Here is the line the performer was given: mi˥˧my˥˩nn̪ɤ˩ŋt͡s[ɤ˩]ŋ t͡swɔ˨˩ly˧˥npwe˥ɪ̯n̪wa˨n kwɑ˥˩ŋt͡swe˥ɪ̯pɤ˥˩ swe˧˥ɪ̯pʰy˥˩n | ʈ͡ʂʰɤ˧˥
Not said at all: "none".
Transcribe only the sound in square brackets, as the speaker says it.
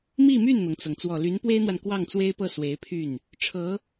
ɤ˩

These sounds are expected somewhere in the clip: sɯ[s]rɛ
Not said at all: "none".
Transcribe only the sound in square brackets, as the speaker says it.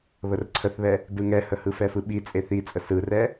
none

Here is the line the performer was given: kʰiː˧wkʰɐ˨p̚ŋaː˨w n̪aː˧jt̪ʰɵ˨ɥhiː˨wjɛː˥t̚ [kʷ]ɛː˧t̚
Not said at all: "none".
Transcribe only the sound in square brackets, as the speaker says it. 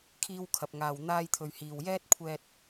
kʷʰ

